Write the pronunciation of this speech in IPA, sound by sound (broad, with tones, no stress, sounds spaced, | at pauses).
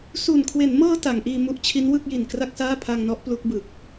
s u˨˩ n kʰ w e˩˦ n m ɤː˧ t a˩˦ ŋ ʔ iː˧ m u˦˥ ʔ t͡ɕʰ i˦˥ n w ɯ˥˩ k̚ j i˨˩ n k r a˥˩ k̚ s aː˥˩ pʰ a˧ ŋ n ɔ˦˥ ʔ p l u˦˥ k̚ b ɯ˨˩ k̚